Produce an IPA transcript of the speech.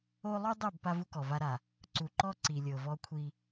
o˦ lˠ u˦ dˤ ɛ˦˨ b p a˦ v u˦ k ɔ˨ v a˦ ɾ a˨ | ǀ u˨ ǃ ɔ˦ ǀ i˨ lʲ ɤ˨ v ɔ˦ kʷʰ i˦

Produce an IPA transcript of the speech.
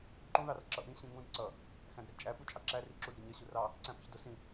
ǃ ũ ð ɑ r ǁ ʌ ʔ ĩ ɕ ĩ ŋ ũ d ǀ ʌ | x æ̃ d ɾ ɛ d t͡ʃʼ æ p u t͡ʃʼ ɑ ǁ æ r i ǁ u d ɾ i ɲ ʌ ɕ u r ɑ | ǀ æ̃ p ə ç d ʊ s ĩ

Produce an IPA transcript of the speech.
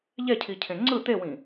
ʎ ɛ cʰ i cʰ ẽ ŋ͡ǀ ɯ t̪ e w ĩ

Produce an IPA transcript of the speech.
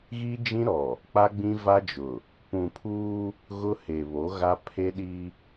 ɣ i˦ d͡ʒ ĩ˦ ɾ ɔ˨ | k͡p a˦ ɡ͡b ĩ˦ v a˦ d͡ʒ ʊ˨ | p ũ˨ pʰ uː˦ | ɣ ʊ˦ h e˨ β o˨˦ ɣ a˦ pʰ e˦ ɗ i˦

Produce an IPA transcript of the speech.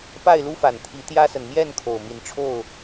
p a˥˨ ɪ̯ l u˦ f a˨˩ n t̪ʰ i˨˦ t̪ j ä˦ s ə˨ n m j ɛ˥˨ n kʰ o˨˩ ʊ̯ m i˨˦ n ʈ͡ʂʰ o˥˨ ʊ̯

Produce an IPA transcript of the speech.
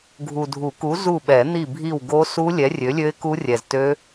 ɡʱ u˨ dʱ u˨˩˦ k u˨˥ z u˦˨ ɓ ɛ˨˩˦ n̪ i˦˨ bʱ i˦˨ w ɡ o˦˥ s u˦˥ lʲ ɛ˨˥ rʲ ø˨˥ lʲ ø˦˥ ɪ̯ k u˦˥ rʲ ɛ˨ z t ø˦˥

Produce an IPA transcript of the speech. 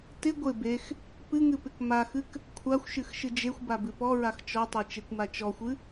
t ɪ ɡʷ ɪ b e x | p ɨ ŋ ɨ p ɪ k m a x ɨ k | kʷʰ a xʷ ʃ ɨ x ʃ ɨ d͡ʒ e xʷ b a b ɨ p ɔ ɹ a x t͡ʃ ɔ tˤ e t͡ʃ e kʷ m a t͡ʃ ɔ xʷ ɨ

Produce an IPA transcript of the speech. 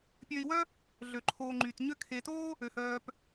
pʲ ø˨ i̯ w œ˦ | ɮ ø˩ ǃʰ oː˨ ŋ͡ǃ yː˩ t ɲ ø˦ kʰ e˨ t oː˥ | ø˩ h œː˨ p

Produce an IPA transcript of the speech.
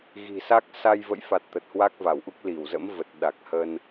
ɣ i̤˨˩ s a˦˥ k̚ s a˧ j v ə̰˧˨ j f a˨˩ t̚ t̪ ə˨˩ t̚ h w a˦˥ k̚ v a˧˩ w ʔ u˦˥ k̚ l i˧˩ w z ə̰˧˥ m v ə˨˩ t̚ ɗ a˨˩ k̚ h ə˧ n

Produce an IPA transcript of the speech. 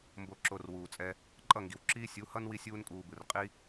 m b o˨ ǁ o˨ r w uː˨ t͡sʼ ɛ˧ | ǃʼ ʌ˦˨ ŋ ɡ i˨ w ǁ iː˦ sʲ u˨˦ h ʌ˦ n w i˦ sʲ uː˦ n kʼ uː˧ b ɯ˨ r qʼ i˦

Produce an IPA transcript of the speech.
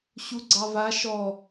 ɕ u ɡ͡ǀ ɑ v a ʃ ɔ

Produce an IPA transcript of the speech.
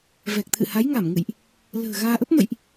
v ɛ˨˩ k̚ t̪ʰ ɨ̰˧˨ h a˨˦ j ŋ a˧˩ m ŋ ɨ̰˧˨ j ʔ | l ə̤ː˨˩ ɣ aː˧ ʔ ə˦˥ p̚ m ə̰˧˨ j ʔ

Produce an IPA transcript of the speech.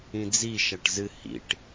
ĩ d͡z i ʃ æ ʈ z ɨ h ḭ ʈ

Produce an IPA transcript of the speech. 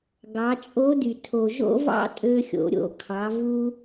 ɡ ɑ˩˧ t͡ʃʼ o˧˥ d y˩ tʰ o˩ ʒ o̰˥ v ɑ̰˥ tʼ ø˧ xʲ o̰˩˧ ɾʲ o̰˩˧ kʰ ɑ˩˧ v u˧

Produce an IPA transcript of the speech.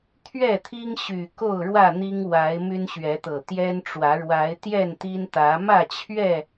t̪ʰ ɥ ɛ˥˨ t̪ʰ i˦ ŋ ɕ y˨˩ k o˥˨ ʊ̯ ɻ w ä˥˨ n̪ i˦ ŋ w a˨˦ ɪ̯ m y˦ n ɕ ɥ ɛ˨˦ t̪ ɤ˨˩ t̪ j ɛ˦ n ʈ͡ʂ w ä˨˦ ɻ w a˨˦ ɪ̯ t̪ j ɛ˥˨ n t̪ i˦ n t̪ ä˨˦ m ä˥˨ t͡ɕʰ ɥ ɛ˥˨

